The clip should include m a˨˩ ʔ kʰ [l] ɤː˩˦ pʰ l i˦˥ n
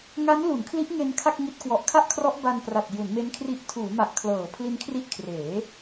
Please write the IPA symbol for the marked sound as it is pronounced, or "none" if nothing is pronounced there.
l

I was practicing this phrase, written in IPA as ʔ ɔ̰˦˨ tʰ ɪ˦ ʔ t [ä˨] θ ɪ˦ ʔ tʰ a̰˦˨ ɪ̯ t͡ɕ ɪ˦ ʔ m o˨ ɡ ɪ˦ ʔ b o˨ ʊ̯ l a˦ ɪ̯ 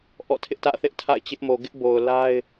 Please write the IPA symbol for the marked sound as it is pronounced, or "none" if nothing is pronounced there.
ä̰˦˨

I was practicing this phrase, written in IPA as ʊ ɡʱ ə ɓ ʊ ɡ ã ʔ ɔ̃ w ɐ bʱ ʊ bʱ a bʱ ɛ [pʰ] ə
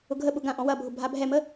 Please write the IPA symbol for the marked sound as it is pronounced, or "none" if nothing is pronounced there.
m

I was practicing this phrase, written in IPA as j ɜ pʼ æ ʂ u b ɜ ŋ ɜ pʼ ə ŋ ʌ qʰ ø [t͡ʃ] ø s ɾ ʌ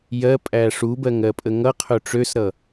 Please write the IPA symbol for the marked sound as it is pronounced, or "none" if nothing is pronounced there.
ʈ͡ʂ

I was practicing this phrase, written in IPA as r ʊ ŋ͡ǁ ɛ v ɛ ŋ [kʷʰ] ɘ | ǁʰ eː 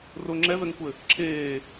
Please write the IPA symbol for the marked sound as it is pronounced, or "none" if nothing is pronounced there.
kʷ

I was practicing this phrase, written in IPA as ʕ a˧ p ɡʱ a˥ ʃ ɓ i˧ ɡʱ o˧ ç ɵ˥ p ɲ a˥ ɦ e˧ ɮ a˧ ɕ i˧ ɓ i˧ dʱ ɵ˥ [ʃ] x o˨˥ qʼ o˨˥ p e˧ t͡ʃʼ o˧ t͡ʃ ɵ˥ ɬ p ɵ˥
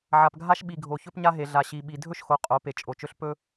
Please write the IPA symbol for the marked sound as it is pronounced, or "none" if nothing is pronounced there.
ʃ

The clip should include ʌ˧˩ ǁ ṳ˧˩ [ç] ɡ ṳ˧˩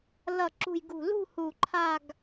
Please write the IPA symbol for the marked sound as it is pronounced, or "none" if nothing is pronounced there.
j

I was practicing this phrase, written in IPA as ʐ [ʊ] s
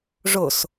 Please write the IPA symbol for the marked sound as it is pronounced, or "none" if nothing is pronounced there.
ʊ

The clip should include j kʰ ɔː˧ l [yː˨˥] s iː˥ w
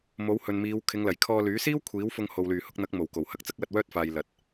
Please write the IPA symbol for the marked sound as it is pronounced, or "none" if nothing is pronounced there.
yː˨˥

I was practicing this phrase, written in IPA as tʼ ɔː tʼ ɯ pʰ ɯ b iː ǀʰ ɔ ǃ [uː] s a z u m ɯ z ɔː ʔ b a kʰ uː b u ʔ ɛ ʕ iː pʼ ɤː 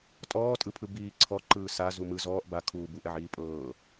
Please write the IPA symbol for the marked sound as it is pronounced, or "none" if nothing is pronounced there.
ɯː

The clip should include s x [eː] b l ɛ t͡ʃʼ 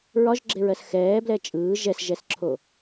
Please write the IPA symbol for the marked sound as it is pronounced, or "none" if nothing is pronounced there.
ɛː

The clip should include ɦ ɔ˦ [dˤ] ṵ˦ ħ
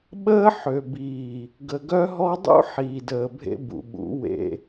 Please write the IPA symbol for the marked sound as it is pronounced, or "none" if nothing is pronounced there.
dˤ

